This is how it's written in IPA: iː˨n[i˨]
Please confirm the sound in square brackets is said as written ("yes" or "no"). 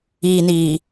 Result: no